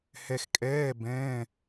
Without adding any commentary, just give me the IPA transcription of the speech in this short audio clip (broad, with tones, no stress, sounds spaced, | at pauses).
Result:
h ɛ˧ x kʼ ɛː˧˥˧ b ɛ̃ː˧˥˧